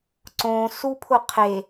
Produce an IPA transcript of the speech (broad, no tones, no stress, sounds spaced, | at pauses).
ǀ õ s u pʰ ʊ qʰ e